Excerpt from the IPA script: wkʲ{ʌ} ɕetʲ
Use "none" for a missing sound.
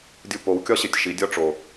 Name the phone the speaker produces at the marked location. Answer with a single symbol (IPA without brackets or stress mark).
ɒ